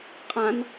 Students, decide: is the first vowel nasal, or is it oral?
nasal